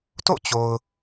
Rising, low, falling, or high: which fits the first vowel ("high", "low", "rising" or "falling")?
falling